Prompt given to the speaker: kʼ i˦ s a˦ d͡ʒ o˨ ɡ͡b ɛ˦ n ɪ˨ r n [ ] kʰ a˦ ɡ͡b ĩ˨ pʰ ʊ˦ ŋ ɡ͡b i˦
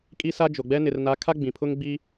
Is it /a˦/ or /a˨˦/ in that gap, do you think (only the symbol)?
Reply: a˨˦